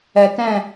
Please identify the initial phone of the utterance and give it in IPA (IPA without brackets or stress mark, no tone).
ɛ